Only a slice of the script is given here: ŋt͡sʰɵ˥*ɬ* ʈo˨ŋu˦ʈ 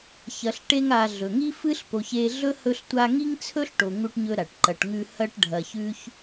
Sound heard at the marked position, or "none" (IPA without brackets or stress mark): ɬ